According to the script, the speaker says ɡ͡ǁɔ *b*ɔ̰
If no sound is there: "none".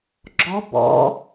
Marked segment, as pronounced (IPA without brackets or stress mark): b